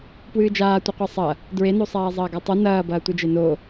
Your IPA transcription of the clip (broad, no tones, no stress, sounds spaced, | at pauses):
p w ɨː d͡ʒ aː tʷ ɨ qʷ a sˤ ɐ | d ɹ e n o sˤ aː zˤ ɐː ɡ a tˤ u n ɐː b ɐː tʷ ɨ d͡ʒ e n o